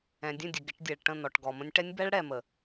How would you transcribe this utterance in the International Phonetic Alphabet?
ɛ̃˨ dʲ ə̃˦˨ dʲ ə˨ ɡ ɪ˨˦ ʈ dʲ ɛ˨ ɭ ʈ ə̃˦˨ n ɔ˨ ʈ ɡ ɔ˨ m ə̃˦ nʲ ʈ ɛ˦ nʲ b ɛ˦ ɭ ɽ ɛ˨ m ə˨

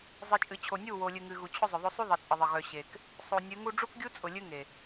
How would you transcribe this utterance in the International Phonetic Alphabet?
zˤ ɨ˨ t͡ʃʼ ɨ˨ t͡ɕʰ o˨ nʲ u˦˨ w o˨ lʲ ɨ˨ ŋ ɨ˨ ɣ u˨ t͡ɕʰ ʊ˦ zˤ ʊ˨ ðˤ o˦ sˤ u˦ ðˤ ə˨ t͡sʼ ə˨ ðˤ ə˨ ɣ œ˨ ɕ e˨ k | sˤ o˨ nʲ ɨ˨˦ ŋ u˦ ɖ͡ʐ u˦ k ɡʲ u˦ t͡sʼ ʊ˨ lʲ ɨ˦ ŋ e˨

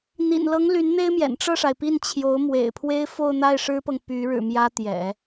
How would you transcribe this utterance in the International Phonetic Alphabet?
n̪ ḭ˨˩ n l ɤ˧˥ ŋ l y˧˥ n n̪ e˥ ɪ̯ m j ɛ̰˨˩ n ʈ͡ʂ ɤ˥˩ ʂ a˩ ɪ̯ p i˥˩ n t͡ɕʰ j o˧˥ ʊ̯ m w ḛ˨˩ ɪ̯ pʰ w e˥ ɪ̯ f o˥˧ ʊ̯ n̪ a˥˩ ɪ̯ ʂ ɻ̩˥ p ɤ˨ ŋ p y˧˥ ɻ ɻ̩˨˩ m j ä˥ t̪ j ɛ̰˨˩˦

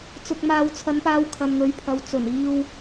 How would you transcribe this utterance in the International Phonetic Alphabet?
t͡s ʊ˨ k̚ m aː˨˧ w t͡sʰ ɐ˨˧ n p aː˧ w kʰ ɐ˨ n ŋ ɵ˨˥ ɥ pʰ ɐ˨ w t͡s ɵ˨˩ n iː˧ w

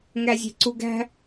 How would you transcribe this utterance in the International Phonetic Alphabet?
ŋ æ zʲ e̤ ǀ u ɡ æ̤

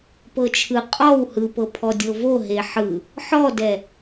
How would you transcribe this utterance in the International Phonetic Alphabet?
p ɤ t͡ʃʰ ɯ qʼ ɔ w h ɯ p ɤ pʰ ɔ dʲ ɤ v o ɦ e ħ ɯ | ħ ɔ d ɛ

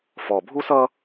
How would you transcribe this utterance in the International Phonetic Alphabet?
f ɔ˨˩ bʱ u˥ s ʌ˥

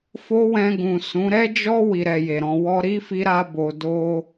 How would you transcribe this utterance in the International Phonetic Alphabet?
f o˦ w ɛ̃˧ ɡ ũ˨ s ũ˨˦ ɾ ɛ˦ d͡ʒ ɔ˦ w i˧ ɾ ɛ˧ j e˨ ɾ ɔ̃˨ w ɔ˧ ɾ i˦ f i˧ ɾ a˧ b o˨ d o˧

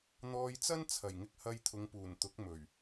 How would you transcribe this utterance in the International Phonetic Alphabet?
n̪ ɔː˧ j t͡s ɐ˥ n t͡sʰ ɐ˨˩ j ŋ ɪ˧ k̚ h ɐ˧ j t̪ʰ ʊ˨˧ ŋ p uː˨˩ n t̪ ʊ˨˥ k̚ m ɵ˨˩ ɥ

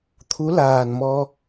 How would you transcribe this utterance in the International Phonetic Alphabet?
t̪ʰ u˨˦ l aː˨˩ n m ɔ˧

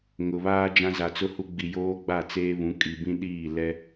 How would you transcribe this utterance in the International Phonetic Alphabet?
ŋ ʊ˨ β aː˦ d͡ʒ ã˦ z a˨ t͡s ʊ˦ h u˦ ɡ͡b i˨ j oː˦ ɡ͡b a˦˨ t͡s eː˦ β ũ˨˦ kʼ i˨ b ĩ˦ ɗ iː˦˨ l ɛ˦

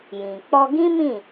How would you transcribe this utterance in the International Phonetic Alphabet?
j ĩ˨ k͡p ɔ˧ ɡ ĩ˦ m ĩ˦˨

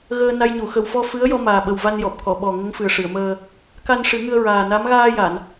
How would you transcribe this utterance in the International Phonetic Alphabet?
ɣ əː˧ n a˧ j ɲ u˨˩˨ x ə˨˩ w f ɔ˧ f ɨ˧˥ ə̯ j ɔ˧ m aː˨˩ ɓ ə˨˩ w v a˧ n j ɔ˨˩ p̚ k ɔ˨˩˨ ɓ ɔ˨˩ ŋ ə˧˥ ŋ f ɨ˨˩ ə̯ ʂ ɨ˨˩˨ ə̯ m əː˧ | k a˧ n ʂ ɨ˨˩˦ ŋ ɨ˧ ə̯ ɹ aː˨˩ n a˧˥ m ɣ aː˧ j a˨˩˨ n

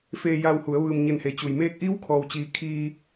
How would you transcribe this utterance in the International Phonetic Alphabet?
f eː˧ j a˧ w h u˩˧ ə̯ ʋ ɯː˩ m ɲ e˧˩ n h e˩˧ t͡ɕ u˩ j m eː˧ k̚ ʔ iː˧˥ w kʰ ɔː˩ w t͡ɕ iː˩ kʰ iː˧

